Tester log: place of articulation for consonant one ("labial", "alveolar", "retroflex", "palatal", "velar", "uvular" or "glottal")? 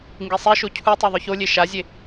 velar